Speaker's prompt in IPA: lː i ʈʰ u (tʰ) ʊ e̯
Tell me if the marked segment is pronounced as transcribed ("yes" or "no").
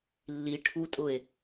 no